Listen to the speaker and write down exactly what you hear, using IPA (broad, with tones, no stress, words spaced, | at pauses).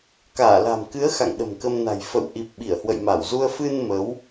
kaː˧˩ la̤˨˩mkɨ˨˦ə̯ xa̰˧˨ŋɗə̤˨˩mkə˧mna̤˨˩j fə̰˧˨w ʔi˨˩p̚ ɓi˧˩ə̯ hwə̰˧˨jma˧˩wzu˧ə̯ fɨ˧n mə˨˦w